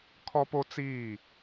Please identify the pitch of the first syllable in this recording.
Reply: high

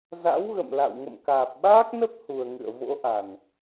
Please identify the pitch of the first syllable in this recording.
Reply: rising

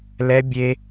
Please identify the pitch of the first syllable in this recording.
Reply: high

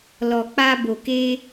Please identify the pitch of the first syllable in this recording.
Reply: low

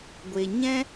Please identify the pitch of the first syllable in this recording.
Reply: low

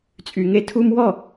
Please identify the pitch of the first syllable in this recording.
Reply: low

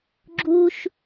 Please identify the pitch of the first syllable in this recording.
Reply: high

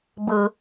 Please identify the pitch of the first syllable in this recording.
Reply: low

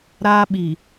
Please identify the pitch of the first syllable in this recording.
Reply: high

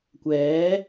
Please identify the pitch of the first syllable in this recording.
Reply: rising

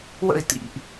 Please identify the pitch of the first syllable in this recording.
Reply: falling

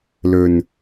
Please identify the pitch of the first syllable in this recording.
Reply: low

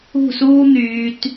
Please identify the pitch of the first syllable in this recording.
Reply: falling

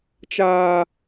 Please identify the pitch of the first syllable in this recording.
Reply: low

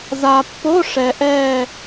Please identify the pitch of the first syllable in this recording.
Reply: low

